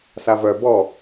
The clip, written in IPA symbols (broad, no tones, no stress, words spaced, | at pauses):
savœ bɔ